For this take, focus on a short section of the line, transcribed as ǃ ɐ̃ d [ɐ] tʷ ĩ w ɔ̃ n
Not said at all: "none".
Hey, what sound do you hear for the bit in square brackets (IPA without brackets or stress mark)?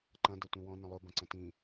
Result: ɐ